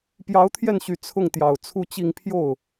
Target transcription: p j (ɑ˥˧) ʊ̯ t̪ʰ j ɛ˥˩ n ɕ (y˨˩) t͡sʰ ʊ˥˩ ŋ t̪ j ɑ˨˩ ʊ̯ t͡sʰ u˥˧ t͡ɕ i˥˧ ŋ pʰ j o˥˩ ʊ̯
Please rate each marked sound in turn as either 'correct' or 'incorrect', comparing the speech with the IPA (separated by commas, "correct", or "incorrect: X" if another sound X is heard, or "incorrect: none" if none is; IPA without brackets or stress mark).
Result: incorrect: ɑ˧˥, correct